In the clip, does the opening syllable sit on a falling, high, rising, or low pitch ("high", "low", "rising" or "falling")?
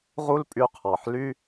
high